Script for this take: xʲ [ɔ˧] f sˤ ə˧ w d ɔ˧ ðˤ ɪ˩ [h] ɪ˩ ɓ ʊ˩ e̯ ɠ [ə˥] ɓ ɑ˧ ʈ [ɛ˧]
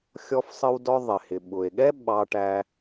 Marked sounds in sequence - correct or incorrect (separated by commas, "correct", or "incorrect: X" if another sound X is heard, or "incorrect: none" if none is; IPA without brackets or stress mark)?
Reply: correct, correct, incorrect: ɛ˥, incorrect: æ˧